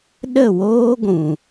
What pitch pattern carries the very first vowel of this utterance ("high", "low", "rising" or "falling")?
falling